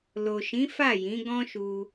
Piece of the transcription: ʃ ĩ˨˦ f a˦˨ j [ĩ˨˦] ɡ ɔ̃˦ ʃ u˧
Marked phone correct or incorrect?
correct